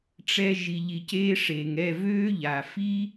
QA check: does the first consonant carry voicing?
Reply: no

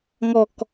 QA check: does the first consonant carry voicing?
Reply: yes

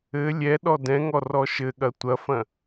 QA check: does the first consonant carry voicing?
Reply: yes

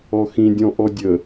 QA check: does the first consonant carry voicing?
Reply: no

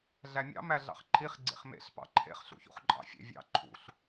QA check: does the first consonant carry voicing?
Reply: yes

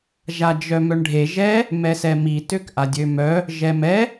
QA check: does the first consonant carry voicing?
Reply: yes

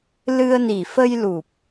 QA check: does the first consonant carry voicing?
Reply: yes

